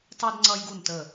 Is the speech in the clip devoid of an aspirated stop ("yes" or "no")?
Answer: yes